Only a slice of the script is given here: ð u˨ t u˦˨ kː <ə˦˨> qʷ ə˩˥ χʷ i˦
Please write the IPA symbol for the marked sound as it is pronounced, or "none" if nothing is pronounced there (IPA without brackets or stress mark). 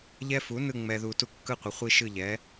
ɯ˦˨